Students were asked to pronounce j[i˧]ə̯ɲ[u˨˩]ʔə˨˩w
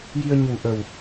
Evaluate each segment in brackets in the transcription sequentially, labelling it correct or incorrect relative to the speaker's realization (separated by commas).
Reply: correct, correct